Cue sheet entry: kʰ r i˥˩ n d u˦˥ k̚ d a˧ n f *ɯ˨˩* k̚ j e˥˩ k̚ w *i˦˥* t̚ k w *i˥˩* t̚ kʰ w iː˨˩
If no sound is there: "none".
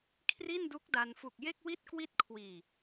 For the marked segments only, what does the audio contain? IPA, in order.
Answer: u˨˩, i˥˩, i˥˩

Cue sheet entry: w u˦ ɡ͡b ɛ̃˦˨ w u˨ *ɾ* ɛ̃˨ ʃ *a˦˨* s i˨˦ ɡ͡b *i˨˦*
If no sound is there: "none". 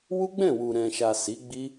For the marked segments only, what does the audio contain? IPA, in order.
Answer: ɾ, a˨, i˦

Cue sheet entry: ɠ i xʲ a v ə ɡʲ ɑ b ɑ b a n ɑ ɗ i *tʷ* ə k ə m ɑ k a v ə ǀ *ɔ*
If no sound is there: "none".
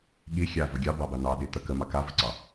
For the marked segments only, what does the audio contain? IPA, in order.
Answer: t̪, ɑ

